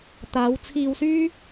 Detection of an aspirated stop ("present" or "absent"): present